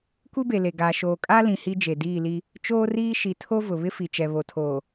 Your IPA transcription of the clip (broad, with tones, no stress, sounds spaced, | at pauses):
kʷ i˦ b e˨ l e˨ ɡ aː˨ ʃ oː˨ kʼ a˦ l ĩ˨ h i˦ d͡ʒ e˨ d iː˦˨ l i˦ | t͡ʃ oː˦ r iː˦ ʃ i˨ tʰ o˦ v ʊ˨ β ɪ˦ f i˨ t͡ʃ ɛ˨ β o˨ tʰ oː˨